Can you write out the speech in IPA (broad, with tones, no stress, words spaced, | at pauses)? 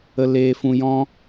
ə˨ leː˨fũ˨jɔ̃˧